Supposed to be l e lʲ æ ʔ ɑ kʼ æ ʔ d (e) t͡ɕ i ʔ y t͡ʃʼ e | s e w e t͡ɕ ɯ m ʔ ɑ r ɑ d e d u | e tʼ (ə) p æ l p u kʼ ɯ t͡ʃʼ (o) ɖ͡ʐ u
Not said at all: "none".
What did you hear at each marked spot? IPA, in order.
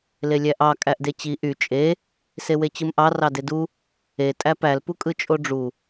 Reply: e, æ, o

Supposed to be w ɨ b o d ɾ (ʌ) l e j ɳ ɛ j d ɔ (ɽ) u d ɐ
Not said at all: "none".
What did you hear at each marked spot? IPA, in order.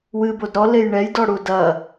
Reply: ɔ, ɽ

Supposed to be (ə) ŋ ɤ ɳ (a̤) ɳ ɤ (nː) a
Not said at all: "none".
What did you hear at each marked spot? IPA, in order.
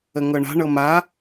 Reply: ə, a̤, m

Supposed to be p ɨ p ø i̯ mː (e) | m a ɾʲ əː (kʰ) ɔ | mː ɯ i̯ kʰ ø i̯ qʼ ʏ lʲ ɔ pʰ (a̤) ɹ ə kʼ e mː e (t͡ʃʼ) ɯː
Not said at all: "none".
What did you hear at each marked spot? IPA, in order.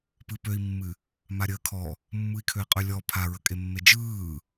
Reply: ɨ, kʰ, a, d͡ʒ

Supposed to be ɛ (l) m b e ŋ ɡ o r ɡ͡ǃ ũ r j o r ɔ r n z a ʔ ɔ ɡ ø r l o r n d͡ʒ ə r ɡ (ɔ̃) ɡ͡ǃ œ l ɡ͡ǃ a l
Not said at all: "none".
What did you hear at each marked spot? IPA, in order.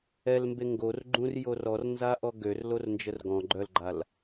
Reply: l, ɔ̃

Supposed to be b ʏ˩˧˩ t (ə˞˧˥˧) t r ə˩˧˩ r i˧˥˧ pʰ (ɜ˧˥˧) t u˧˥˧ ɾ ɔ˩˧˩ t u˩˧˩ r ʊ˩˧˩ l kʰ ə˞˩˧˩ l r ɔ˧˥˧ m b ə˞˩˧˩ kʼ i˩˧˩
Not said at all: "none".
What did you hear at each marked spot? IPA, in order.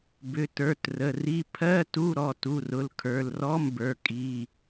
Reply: ə˞˩˧˩, ɜ˧˥˧

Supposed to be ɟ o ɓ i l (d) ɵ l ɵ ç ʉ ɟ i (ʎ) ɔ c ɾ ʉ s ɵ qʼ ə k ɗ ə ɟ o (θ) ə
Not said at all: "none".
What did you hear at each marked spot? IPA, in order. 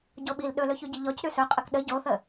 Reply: ɗ, ʎ, θ

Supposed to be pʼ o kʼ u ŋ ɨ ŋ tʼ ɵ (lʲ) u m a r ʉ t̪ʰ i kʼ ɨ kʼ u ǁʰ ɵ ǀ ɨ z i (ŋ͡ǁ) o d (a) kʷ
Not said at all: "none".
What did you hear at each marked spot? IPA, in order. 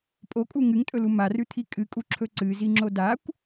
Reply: l, ŋ͡ǁ, a

